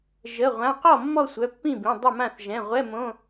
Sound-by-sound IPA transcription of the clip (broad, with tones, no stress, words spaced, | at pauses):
ʒə˩˧˩ ʁʷã˩˧˩qɔ˥˩ mːɔ˥˧sʷœ˩˧˩pːĩ˥˩bĩ˩˧˩ dˤə˥˩mã˥˩θ ʒɛ̃˩˧˩ʁʷɛ˧˥˧mõ˧˥˧